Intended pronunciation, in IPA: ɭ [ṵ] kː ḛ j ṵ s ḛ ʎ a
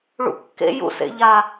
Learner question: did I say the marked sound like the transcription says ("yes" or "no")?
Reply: yes